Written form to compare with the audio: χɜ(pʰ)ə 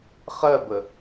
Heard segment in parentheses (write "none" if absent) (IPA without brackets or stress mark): b